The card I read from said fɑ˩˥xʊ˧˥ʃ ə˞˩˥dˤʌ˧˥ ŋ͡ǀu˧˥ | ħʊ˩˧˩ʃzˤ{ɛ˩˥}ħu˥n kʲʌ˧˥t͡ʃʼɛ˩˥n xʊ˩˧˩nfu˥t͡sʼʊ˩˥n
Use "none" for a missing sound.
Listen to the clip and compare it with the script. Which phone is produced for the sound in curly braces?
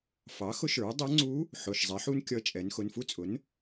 ɛ˩˥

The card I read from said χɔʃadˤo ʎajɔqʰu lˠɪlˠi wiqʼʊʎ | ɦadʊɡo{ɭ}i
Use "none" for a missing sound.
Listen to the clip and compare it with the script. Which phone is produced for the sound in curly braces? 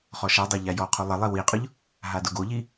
ʎ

